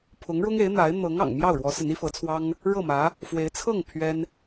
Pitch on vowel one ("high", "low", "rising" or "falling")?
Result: rising